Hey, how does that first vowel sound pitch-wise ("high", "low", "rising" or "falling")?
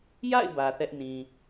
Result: falling